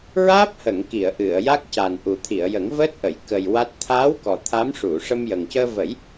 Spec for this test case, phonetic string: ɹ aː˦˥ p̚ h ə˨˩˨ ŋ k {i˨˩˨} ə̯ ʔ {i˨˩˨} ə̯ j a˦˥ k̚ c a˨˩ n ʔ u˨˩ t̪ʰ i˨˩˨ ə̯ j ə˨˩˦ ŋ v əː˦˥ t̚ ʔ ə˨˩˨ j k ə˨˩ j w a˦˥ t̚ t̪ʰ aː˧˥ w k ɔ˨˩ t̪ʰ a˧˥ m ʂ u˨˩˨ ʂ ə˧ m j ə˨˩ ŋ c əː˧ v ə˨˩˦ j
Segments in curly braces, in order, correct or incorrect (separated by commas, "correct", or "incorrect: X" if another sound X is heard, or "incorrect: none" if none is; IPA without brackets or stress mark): correct, incorrect: ɨ˨˩˨